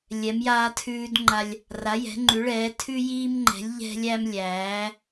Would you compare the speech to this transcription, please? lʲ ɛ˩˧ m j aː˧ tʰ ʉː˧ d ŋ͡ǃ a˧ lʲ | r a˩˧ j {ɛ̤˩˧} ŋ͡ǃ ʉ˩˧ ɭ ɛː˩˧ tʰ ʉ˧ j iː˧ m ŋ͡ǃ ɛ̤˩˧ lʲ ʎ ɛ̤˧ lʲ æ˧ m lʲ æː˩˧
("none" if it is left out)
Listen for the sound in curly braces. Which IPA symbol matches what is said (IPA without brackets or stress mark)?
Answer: ɛ̤˩˧